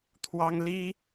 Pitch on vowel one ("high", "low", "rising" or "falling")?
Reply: high